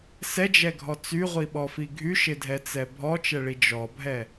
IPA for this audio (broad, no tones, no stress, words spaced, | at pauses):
sɛd͡ʒɛɡʱɔ t͡syʁʷiɓɔfi ɡʱyʃɪdʱɛt͡sɛ bʱɔt͡ʃɛɭi d͡ʒɔbʱɛ